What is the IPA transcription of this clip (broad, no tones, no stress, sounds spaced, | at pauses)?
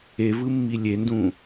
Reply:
e v ɯ mː i lʲ e n d ũ